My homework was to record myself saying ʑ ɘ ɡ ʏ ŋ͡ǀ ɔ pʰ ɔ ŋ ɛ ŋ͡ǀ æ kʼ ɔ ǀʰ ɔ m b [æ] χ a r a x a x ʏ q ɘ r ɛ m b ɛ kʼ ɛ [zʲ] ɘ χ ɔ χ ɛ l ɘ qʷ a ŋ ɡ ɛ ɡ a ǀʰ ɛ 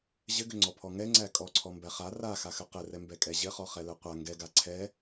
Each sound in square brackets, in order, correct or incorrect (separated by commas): correct, incorrect